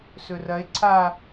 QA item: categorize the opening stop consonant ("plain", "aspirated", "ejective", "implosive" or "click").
click